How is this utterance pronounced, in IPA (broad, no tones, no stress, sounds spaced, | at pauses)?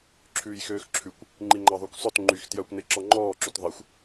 ǁʰ ʉː j x øː x ǁʰ ʉ kʷ | ŋ͡ǃ i ŋ͡ǃ ɑ ðˤ ʉ kʷ sˤ œ t ŋ͡ǃ y x t j œ kʷ n e ǁ ɔ ŋ͡ǃ ɔː ǁ ʉ t ðˤ e xʷ